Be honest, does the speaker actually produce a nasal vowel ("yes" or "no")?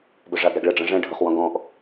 yes